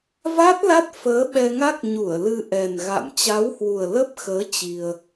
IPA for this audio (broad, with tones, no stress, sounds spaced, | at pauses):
v a˦˥ t̚ l a˦˥ t̚ f əː˨˦ ɓ ɛ˧ ŋ a˦˥ k̚ ɲ u˧˩ ə̯ l ɨ˧ ʔ ɛ˨˩ n ɣ a̰˧˨ m t͡ɕ a˨˦ w h w u˨˩ ə̯ l ə˦˥ p̚ x əː˨˦ t͡ɕ i˧ ə̯